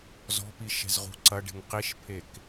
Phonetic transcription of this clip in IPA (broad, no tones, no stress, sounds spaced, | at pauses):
z ɔ̤ p i ʃ ɛ̤ z ʁ ṳ ǀ ɐ ɖ e̤ ŋ q i ʃ pʰ e k